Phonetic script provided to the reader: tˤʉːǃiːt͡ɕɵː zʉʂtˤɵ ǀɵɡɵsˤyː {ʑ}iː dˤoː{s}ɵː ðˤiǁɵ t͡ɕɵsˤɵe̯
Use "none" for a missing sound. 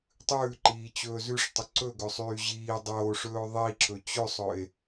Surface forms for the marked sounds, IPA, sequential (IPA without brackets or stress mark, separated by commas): ʑ, ʂ